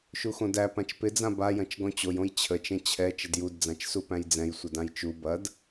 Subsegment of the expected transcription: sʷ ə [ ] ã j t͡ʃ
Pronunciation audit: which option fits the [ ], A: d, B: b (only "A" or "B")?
A